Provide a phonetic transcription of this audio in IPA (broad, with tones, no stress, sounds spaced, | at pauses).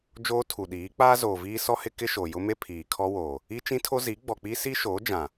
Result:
d͡ʒ oː˦ tʰ u˨ ɗ iː˨˦ k͡p aː˦ z oː˨ v iː˦ s ɔ˦ h ɪ˦ k ɪ˦ ʃ o˨ j ʊ˦ m e˦ pʰ iː˨ kʰ ɔ˦ w oː˨ | i˦ t͡ʃ ĩ˦ tʰ o˦ z i˨˦ ɡ͡b ɔ˨ k͡p i˦ s i˦ ʃ oː˨˦ d͡ʒ ã˨